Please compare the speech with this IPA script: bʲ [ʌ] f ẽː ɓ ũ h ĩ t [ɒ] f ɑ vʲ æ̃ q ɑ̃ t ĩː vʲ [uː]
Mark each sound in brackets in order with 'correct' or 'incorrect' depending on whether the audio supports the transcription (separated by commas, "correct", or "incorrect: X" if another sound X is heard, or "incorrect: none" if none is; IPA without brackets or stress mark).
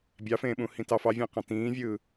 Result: incorrect: ɑ, incorrect: ɑ, incorrect: ɯː